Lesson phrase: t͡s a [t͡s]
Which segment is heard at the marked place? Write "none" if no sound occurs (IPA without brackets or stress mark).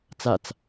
t͡s